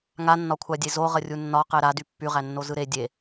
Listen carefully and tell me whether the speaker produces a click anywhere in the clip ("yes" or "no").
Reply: no